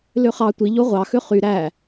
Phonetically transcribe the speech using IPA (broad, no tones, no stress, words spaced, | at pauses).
løχɑ tʷiʎo ʁʷɑxø χy ɾæ